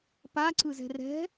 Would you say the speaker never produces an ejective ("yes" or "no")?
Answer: yes